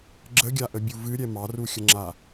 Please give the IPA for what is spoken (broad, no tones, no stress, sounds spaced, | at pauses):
ɡ͡ǁ ə ɡʲ a ʔ ə bʲ u v ɨ ɾʲ ɛ m ɑ r u xʲ ə ŋ͡ǁ a